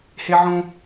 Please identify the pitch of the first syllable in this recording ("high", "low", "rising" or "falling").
high